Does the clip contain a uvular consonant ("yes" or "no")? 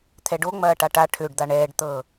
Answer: no